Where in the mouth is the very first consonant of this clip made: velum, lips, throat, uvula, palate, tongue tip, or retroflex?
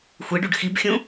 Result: velum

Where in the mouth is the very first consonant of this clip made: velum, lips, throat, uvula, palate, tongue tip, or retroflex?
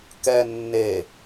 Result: velum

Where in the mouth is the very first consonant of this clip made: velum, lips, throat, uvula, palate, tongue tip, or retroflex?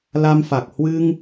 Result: tongue tip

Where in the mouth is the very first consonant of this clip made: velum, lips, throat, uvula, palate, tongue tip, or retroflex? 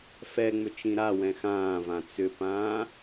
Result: lips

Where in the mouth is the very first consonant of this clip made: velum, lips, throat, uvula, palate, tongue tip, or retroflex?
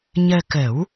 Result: palate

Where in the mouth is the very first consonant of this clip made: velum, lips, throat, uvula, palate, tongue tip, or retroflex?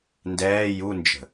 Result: tongue tip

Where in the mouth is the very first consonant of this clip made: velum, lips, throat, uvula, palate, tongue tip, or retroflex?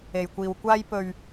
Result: palate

